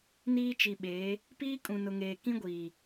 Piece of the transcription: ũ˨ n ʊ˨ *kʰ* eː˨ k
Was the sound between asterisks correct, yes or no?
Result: no